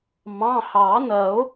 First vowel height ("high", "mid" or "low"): low